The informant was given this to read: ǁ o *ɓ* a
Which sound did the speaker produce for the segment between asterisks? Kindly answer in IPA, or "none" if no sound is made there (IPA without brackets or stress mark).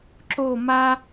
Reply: m